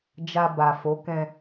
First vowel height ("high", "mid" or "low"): low